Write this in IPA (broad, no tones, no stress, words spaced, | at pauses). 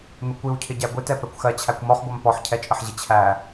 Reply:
mɪkʷiwcʰɪ ɟæɡʷitɛ pɛkʷxɜt͡ɕʰækʷ mɔχɡʷɜm pɔħ cʰɛt͡ʃʼəħʑɪ t͡ɕʰæ